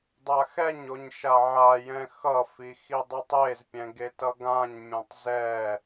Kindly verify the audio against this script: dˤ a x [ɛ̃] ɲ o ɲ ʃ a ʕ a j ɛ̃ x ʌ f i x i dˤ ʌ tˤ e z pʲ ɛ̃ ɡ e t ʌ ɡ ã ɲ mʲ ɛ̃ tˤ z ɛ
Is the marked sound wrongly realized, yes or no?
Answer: yes